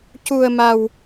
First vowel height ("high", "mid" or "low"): high